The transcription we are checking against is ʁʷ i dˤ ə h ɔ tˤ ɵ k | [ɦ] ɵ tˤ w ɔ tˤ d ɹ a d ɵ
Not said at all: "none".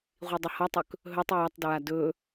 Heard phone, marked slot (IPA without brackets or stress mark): ɦ